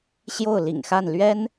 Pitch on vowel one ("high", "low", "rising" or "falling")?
falling